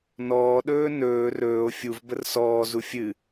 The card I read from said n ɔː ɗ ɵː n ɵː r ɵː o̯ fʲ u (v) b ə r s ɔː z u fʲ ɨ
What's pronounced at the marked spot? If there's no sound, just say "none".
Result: v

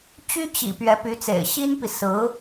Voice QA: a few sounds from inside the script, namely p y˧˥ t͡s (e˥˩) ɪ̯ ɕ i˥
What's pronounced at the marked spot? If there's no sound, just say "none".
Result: ḛ˨˩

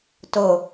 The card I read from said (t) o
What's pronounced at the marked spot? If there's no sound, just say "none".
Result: t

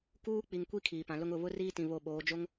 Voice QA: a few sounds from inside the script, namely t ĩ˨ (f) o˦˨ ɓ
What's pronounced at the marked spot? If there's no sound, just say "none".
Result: β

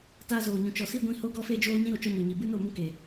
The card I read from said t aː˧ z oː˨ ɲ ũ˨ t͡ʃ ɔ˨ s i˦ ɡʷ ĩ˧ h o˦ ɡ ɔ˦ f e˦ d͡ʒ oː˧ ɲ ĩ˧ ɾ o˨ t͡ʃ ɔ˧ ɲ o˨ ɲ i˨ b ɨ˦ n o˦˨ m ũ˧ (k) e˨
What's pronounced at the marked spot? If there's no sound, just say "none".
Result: k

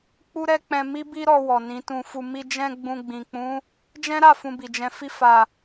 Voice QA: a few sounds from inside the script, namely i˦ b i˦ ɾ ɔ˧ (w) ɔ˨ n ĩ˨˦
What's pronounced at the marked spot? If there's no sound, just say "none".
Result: w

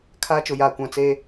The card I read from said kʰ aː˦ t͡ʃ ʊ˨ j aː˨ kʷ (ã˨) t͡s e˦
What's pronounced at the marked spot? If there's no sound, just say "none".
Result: ã˨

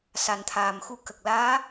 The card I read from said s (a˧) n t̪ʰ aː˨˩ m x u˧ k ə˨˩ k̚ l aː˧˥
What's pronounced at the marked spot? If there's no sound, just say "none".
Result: a˨˩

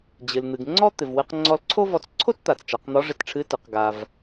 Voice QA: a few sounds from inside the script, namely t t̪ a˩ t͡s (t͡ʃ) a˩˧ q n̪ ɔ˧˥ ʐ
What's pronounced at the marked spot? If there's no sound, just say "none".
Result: t͡ʃ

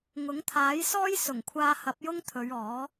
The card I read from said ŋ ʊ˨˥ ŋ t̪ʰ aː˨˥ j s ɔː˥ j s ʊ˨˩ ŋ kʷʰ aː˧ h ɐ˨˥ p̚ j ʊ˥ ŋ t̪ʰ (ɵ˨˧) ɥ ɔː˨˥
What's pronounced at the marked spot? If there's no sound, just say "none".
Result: ɵ˨˧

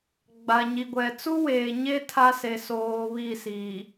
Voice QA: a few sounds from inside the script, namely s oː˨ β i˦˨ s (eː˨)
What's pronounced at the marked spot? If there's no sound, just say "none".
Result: iː˨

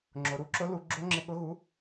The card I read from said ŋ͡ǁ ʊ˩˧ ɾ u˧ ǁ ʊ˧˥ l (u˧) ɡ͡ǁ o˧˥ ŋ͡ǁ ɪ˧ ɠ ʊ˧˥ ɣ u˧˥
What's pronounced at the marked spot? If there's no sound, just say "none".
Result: u˧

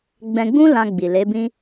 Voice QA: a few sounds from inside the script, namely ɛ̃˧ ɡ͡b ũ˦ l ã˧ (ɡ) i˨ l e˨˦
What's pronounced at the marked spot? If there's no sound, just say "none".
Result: ɡ͡b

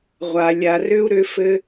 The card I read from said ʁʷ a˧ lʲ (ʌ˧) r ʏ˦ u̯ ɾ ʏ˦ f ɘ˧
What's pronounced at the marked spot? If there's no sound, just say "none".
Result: a˧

